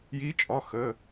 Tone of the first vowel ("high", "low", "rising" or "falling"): rising